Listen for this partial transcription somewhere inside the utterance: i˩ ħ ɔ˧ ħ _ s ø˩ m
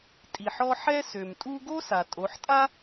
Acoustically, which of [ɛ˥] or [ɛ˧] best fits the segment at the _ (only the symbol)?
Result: ɛ˥